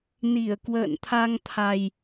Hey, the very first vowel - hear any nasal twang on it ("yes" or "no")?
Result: no